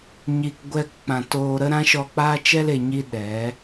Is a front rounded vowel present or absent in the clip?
absent